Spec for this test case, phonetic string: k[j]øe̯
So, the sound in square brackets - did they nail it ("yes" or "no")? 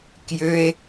yes